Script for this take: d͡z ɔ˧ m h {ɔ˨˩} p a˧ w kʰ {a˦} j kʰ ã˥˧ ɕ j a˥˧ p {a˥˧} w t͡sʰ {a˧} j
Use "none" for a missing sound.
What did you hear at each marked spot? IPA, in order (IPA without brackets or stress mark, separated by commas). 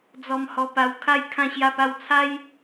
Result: ɔ˧, a˥˧, a˥˧, a˦